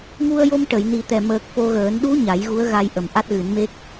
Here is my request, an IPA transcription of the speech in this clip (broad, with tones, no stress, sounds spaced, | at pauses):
ŋ u˧ ə̯ j o˧ m ʈ ə˨˩˨ j n i˨˩ t̪ ɛ˨˩ m əː˨˩ k̚ f o˧ ɣ əː˨˩˦ n ɗ u˧˥ ɲ a˨˩˦ j ɣ u˧˥ ə̯ ɣ a˧ j ʔ ə˨˩ m ʔ a˦˥ t̚ ɣ ɨ˨˩˦ n m e˦˥ k̚